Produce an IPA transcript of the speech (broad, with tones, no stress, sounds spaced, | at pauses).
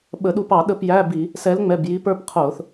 ɓ ə˧˩˧ ɗ u˦˨ p ɑ˧˩˧ ɗ ə˦˨ p j æ˧˥˧ b i˧˩˧ | s ɛ˨˥ l ŋ͡m ɛ˩˧˩ b j i˨˥ p ə˞˧˥˧ p qʰ ʊː˧˩˧ θ